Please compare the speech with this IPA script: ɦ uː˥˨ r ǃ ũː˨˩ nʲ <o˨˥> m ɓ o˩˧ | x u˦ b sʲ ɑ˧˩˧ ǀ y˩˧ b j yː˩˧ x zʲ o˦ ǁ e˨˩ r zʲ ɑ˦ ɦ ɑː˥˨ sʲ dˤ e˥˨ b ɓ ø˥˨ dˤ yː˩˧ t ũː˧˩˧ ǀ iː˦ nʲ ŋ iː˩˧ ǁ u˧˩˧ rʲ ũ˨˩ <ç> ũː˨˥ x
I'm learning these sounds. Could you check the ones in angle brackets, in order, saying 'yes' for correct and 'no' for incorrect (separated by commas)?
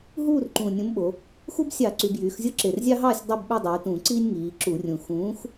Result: no, no